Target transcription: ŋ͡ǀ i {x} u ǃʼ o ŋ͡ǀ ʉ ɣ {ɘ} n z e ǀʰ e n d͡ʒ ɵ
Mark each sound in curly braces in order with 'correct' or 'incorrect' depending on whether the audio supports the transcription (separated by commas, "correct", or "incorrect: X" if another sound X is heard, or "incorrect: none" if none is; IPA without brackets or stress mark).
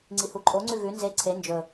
incorrect: h, incorrect: ʉ